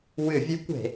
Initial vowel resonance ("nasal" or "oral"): oral